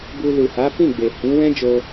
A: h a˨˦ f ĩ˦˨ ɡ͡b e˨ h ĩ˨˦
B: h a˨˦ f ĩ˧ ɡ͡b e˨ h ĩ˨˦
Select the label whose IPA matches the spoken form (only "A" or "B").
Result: A